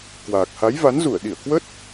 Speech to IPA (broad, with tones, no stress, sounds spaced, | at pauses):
k w aː˨˩ k̚ h a˨˦ j v a˨˦ n z u˧˩ ə̯ ɗ i˧˩ ə̯ k w ə˦˥ t̚